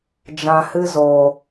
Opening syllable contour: low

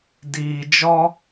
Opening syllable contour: low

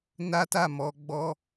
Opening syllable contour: high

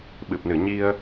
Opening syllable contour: low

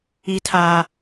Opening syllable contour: low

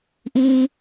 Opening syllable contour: low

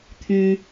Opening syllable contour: low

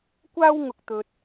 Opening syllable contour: high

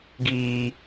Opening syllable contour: high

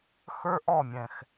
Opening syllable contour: high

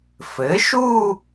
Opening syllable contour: rising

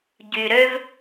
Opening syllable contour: low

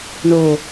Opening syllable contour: low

